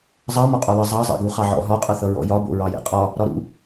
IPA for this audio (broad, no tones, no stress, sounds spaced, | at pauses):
zˤ ɑ m ɔ qʼ ɒ l ʌ zˤ ɑ zˤ ɛ̰ ɡ u χ ɑ ʕ ɔ̰ ɦ ɒ qʼ ʌ θ ʌ ɹ ɔ̰ j ɒ b o̰ ɹ ɑ j ɛ̰ qʼ ɒ | ɾ ɒ ɾ ṵ